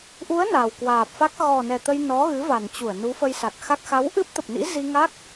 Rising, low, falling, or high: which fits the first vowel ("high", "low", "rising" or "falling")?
rising